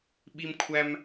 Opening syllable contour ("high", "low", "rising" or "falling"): high